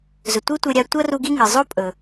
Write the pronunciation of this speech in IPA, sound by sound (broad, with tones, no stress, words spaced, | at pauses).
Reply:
zɵ˩tʷi˥tʷe˧ɾʲa˧ tʷɐ˥ru˧ ɡi˥ŋɨ˩ zˤo˥pʼɵ˩